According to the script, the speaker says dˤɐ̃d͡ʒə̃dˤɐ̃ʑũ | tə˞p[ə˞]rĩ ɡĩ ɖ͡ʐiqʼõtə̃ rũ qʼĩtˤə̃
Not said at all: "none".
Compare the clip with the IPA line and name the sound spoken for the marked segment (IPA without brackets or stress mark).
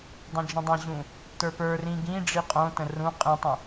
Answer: ə˞